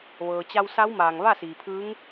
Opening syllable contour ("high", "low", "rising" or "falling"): low